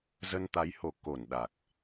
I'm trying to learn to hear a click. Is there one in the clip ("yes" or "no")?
no